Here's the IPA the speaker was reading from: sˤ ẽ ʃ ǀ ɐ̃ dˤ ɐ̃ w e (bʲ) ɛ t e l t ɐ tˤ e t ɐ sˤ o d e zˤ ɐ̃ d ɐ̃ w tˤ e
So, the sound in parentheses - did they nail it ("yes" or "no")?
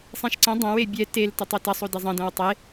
yes